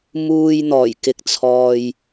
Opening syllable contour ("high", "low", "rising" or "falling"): low